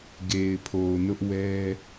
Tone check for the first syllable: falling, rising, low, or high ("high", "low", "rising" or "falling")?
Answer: low